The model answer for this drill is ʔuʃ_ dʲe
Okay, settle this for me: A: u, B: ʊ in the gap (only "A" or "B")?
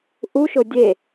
B